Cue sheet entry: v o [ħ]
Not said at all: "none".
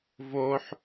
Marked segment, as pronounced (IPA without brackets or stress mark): ħ